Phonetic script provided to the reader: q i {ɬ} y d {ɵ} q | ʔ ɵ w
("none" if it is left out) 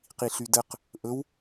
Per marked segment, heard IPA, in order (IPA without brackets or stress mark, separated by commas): ɬ, ə